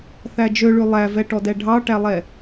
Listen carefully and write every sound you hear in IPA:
θ æ d͡ʒ ø ɭ ʉ lˠ æ v ɛ ʈ ɔ d ɛ ɖʱ ɑ ʈ æ lˠ ɛ

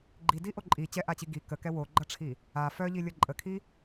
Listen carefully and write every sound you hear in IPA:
ɡ͡ǃ i d i ʔ o ǃʼ i t͡ɕ ɛ ʔ a t͡ɕ i ɡ i k ə k ɛ w o ɡ͡ǃ ʌ ʈ͡ʂʰ i | a f œ ʎ i lʲ ʌ ǃʼ ə kʰ i

